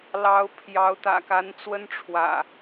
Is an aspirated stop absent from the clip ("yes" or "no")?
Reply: no